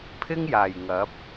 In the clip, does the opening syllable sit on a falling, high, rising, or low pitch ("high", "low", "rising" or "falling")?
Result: high